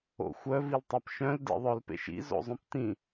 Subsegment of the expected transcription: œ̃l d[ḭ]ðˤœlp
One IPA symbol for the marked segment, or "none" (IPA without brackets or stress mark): ḭ